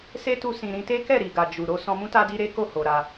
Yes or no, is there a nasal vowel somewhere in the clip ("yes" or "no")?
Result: yes